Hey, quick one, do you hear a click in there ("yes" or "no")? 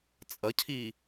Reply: no